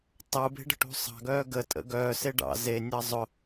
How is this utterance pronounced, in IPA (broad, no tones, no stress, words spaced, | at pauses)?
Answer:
tˤu be̤ɖə̤ʈṳsˤɑ̤ ɡœːɡə tʼə̰ɡœː seɖɑ̰ ze nʲɑzˤʊ